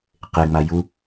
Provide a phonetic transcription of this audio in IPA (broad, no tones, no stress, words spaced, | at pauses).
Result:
qeŋ͡ma ju